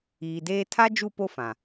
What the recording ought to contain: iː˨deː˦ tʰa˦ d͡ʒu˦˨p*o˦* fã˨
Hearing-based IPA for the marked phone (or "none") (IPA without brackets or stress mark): o˦